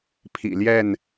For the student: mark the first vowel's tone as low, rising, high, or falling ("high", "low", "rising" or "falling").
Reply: low